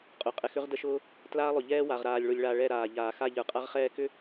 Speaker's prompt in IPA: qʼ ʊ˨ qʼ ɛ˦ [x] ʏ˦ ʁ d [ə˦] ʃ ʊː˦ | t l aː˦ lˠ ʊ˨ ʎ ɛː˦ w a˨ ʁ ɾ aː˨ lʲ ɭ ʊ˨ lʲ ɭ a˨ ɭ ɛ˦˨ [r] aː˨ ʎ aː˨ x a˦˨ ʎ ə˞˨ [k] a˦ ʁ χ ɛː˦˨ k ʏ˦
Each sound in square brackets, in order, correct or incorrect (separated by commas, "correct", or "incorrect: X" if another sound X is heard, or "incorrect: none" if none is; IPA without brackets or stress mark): correct, correct, incorrect: ɾ, incorrect: qʼ